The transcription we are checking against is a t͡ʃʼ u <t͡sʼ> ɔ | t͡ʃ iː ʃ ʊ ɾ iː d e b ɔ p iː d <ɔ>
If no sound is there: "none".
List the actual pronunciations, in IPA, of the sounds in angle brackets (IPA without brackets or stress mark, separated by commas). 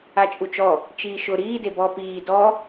t͡ʃ, ɔ